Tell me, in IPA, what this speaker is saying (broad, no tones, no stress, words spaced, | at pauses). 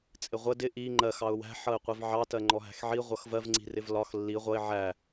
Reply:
t͡sʼɪʁʷə dɪ ʔi ŋ͡ǃɜx ɑʊ̯wæ̤ ħʌɪ̯qʷivʕɑ tɜŋ͡ǃɔɦæ̤xʕi ʁʷʌxvɜv ŋ͡ǀi̤rɪvlɒx lːi ʁʷʌɪ̯ ʕæ